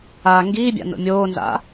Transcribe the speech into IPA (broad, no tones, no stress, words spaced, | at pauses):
a ŋɡiːbʲa̰ no̰mʲoːnza̰